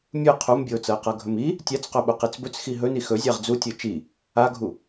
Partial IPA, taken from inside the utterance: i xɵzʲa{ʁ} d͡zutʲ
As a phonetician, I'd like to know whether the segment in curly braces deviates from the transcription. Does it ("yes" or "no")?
no